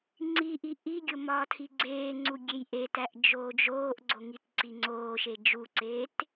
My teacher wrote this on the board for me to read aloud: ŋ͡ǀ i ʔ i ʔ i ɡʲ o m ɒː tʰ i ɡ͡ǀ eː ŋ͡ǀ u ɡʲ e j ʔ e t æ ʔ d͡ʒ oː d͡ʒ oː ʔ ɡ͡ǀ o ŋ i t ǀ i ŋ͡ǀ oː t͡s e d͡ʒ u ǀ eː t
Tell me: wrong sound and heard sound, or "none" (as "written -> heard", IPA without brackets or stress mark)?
t͡s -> ʃ